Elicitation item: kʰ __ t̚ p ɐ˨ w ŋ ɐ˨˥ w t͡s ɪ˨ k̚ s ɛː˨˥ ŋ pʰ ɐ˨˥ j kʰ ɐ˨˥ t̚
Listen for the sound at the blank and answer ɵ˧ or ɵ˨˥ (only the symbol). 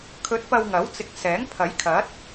ɵ˨˥